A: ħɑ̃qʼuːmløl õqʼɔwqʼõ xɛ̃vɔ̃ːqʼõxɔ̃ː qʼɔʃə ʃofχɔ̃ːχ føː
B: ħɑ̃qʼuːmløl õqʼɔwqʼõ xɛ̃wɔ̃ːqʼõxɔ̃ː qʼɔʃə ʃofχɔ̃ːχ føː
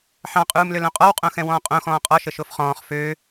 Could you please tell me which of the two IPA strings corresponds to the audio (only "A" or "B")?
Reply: B